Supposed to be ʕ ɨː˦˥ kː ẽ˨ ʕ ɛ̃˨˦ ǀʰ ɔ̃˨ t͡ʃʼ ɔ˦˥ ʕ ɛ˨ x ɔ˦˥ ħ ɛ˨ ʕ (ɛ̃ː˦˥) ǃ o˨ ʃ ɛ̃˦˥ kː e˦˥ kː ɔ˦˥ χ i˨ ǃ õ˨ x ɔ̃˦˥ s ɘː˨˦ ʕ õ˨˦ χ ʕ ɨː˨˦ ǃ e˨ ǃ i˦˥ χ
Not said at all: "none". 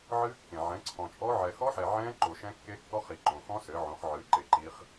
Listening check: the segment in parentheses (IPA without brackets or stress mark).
ɛ̃ː˦˥